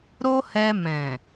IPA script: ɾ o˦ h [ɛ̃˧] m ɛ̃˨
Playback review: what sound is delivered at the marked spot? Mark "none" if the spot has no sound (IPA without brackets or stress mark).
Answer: ɛ˧